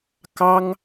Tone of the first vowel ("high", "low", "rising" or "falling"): high